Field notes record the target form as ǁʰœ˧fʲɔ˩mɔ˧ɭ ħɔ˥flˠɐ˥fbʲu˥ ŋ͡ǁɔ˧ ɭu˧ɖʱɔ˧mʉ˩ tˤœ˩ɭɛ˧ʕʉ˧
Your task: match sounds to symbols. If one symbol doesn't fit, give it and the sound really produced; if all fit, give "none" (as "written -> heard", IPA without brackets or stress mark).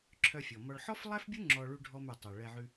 ɐ˥ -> æ˥